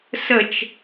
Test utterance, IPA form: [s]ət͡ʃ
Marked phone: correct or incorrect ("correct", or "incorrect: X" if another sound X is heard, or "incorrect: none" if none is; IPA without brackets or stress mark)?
correct